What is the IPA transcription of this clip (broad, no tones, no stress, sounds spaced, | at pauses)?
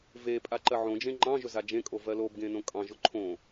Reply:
v e pʼ a ǃ ɜ ʕ õ d͡ʒ ẽ ŋ͡ǃ ɑ̃ ʒ ɵ z a d͡ʒ ẽ kʼ o v ɜ l o b ɡ ẽ n õ kʼ ɑ̃ ʒ ʊ ǃʰ õ